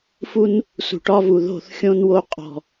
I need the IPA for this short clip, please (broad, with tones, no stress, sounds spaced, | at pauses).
f u˦ n | s ṳ˨ ʈ ɒ˦ v u˨ ð o̤˦˨ θ xʲ õ˦ n w o˦ qʼ ɔ̤˨